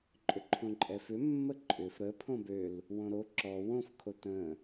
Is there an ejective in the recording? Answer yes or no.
yes